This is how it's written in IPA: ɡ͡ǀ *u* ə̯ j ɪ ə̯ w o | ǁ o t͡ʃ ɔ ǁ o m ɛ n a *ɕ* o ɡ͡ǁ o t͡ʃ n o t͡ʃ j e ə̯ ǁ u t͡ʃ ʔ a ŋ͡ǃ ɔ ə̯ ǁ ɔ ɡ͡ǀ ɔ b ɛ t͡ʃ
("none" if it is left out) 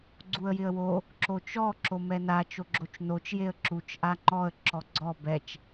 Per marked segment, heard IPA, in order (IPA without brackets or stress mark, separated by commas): u, t͡ʃ